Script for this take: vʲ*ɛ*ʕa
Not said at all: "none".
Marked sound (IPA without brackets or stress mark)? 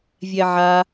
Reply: ɛ